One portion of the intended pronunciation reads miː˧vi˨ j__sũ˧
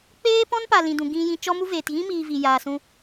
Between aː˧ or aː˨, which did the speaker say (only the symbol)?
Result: aː˨